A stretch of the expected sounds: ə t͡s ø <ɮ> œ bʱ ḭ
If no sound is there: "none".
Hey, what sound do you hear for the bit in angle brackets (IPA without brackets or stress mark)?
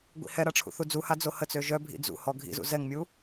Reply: ʒ